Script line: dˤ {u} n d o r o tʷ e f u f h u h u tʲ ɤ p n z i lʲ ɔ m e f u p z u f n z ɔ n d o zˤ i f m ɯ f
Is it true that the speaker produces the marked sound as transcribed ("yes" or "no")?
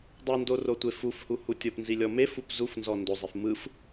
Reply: no